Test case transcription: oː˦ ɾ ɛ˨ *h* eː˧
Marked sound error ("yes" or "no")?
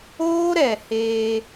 no